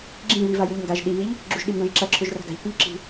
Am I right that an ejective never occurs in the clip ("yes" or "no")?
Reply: yes